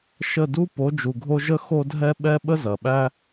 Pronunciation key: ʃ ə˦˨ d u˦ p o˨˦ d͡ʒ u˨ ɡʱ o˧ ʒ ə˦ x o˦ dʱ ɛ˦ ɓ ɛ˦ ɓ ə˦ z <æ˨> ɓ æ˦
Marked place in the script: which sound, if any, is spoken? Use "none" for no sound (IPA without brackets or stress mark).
ɐ˨